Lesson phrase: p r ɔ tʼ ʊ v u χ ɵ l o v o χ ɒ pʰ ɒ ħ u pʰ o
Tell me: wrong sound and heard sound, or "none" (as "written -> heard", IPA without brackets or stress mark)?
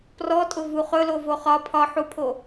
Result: none